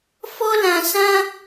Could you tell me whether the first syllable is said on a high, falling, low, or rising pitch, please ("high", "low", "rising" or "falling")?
high